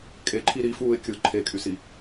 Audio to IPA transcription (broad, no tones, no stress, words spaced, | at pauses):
kʼeǃʰi ɾifuːɪ̯ kʲɯ ǃʰekʼysi